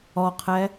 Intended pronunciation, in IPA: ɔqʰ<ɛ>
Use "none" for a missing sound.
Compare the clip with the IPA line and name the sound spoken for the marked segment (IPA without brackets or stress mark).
ɛ